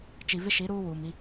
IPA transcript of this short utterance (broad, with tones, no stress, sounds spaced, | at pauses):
t͡ʃ i˨ v ɪ˦ ʃ i˨˦ ɾ uː˦ w uː˨ m i˦